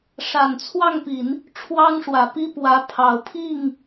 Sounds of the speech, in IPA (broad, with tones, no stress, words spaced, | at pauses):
ʂa˨˩nt͡sʰwɑ˥˩ŋpi˨˩˦n | ʈ͡ʂʰwɑ˥ŋʂwä˨˩pi˥ pwä˧˥pʰɑ˨˩ʊ̯ pʰi˥˩ŋ